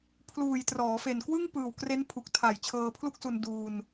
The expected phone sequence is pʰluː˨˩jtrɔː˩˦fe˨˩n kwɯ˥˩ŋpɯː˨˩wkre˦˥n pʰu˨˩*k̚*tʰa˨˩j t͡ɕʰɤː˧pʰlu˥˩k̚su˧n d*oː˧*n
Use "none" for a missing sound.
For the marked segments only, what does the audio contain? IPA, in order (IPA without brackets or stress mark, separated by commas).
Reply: k̚, uː˧